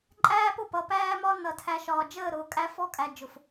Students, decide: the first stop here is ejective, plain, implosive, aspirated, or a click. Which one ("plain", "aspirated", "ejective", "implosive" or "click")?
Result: click